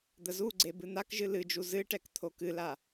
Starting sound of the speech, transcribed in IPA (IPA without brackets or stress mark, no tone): d̪